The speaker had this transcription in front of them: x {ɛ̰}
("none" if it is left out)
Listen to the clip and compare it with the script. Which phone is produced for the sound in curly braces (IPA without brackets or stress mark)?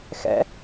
ɛ̰